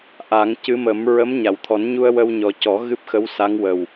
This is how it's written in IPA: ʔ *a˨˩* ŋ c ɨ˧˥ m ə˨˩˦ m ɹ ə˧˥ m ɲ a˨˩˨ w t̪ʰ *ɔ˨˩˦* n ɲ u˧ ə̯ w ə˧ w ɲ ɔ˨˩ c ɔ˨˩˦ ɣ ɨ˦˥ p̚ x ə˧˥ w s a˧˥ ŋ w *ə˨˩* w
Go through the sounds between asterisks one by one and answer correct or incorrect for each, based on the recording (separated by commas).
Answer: incorrect, correct, correct